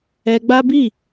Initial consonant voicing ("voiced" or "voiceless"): voiced